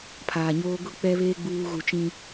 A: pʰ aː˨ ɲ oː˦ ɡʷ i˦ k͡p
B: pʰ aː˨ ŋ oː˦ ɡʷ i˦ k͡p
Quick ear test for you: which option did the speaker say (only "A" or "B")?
A